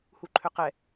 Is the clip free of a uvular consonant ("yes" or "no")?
no